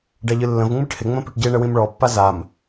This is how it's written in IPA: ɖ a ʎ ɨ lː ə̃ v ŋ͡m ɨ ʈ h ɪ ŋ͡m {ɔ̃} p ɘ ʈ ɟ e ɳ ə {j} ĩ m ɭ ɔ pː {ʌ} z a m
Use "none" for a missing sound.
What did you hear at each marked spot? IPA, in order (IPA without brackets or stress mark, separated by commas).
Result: ə̃, w, a